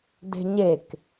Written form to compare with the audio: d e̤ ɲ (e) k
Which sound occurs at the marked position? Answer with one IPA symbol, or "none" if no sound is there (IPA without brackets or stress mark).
e